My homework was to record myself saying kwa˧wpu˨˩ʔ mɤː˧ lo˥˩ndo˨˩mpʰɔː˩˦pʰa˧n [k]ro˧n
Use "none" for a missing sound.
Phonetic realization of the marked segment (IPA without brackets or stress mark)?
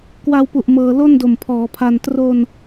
t